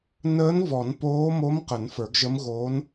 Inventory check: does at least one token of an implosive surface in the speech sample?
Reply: no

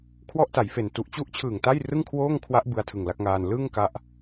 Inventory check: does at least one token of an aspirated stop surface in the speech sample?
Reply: yes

